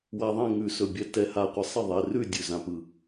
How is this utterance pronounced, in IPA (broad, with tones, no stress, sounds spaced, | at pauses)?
w a˧ ðˤ ɛ̃˥˨ ŋ ʉ˧˩ s ɵ˧˩ bʲ ɛ˧ t ɛ˧˩ h a˧˩ qʷ ɪ˧ sˤ ɪ˥˨ ðˤ ɛ˩˧˩ r ʉ˥˨ dʲ ʉ˩˧˩ z ã˧ p ɯ˧˩